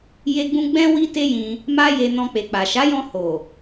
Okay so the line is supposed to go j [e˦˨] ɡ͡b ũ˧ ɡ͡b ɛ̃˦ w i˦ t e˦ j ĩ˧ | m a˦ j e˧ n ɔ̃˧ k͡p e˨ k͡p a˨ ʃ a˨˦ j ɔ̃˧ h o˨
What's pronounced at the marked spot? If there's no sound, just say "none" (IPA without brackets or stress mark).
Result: e˧